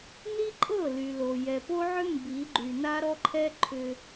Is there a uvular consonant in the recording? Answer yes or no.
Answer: no